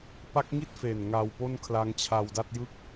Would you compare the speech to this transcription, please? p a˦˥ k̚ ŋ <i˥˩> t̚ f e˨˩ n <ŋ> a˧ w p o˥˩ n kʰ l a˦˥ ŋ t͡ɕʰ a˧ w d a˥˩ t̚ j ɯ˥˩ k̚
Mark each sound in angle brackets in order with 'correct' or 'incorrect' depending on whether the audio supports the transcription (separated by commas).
correct, correct